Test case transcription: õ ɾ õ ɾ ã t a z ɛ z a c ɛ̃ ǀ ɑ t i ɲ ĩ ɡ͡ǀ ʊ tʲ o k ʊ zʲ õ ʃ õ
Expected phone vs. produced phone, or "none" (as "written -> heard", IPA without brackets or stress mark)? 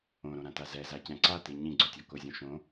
ɑ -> a